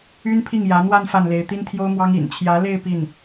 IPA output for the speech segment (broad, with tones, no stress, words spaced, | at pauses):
y˥npʰi˥˩ŋjä˧˥ n̪wa˥˧n fa˥˩nle˧˥ɪ̯ t̪i˥nt̪ʰjo˥ʊ̯mwɑ˥ŋ ḭ˨˩nt͡ɕʰjä˧˥le˥˧ɪ̯ pi˥˩n